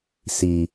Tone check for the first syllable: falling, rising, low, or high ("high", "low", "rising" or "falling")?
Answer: low